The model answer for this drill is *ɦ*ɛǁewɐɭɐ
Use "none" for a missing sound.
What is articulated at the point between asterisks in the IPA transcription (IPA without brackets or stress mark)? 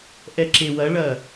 ʔ